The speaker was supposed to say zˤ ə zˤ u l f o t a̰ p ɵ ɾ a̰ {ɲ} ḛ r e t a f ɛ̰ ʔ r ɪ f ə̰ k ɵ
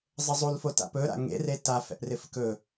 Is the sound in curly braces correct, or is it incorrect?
incorrect